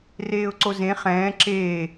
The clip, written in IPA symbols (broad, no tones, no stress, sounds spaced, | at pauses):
r eː ʊ̯ ǀ o z ẽ χ ɛ̃ː ǁ eː